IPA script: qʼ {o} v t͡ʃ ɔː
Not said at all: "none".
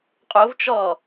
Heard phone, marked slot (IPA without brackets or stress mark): o